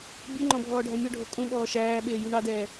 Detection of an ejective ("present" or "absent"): present